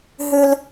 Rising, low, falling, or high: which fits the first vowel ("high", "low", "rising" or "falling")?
high